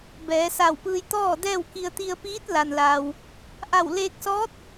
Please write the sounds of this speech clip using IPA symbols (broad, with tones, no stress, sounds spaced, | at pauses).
b ɛː˩˧ s a˧˩ w p ɯː˧ j t̪ ɔː˥˨ d ɛː˥˨ w k i˧ ə̯ t̪ i˧ ə̯ p iː˧˥ t̚ l a˩ n l aː˩ w | ʔ a˧˩ w l eː˧ k̚ s ɔː˧˥ t̚